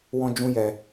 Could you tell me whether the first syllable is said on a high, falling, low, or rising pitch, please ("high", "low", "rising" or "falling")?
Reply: high